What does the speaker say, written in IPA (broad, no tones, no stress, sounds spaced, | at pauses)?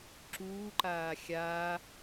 ǁ uː ǃ aː xʲ aː